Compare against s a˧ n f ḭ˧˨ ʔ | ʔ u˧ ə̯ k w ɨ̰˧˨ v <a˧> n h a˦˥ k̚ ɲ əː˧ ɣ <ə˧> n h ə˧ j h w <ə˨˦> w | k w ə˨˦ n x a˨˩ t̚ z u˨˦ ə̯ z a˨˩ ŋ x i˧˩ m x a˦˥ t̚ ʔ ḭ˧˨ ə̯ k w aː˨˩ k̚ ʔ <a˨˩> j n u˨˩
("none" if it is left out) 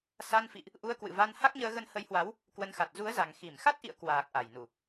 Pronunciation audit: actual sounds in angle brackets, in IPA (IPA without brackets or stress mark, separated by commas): a˧, ə˧, a˨˦, a˨˩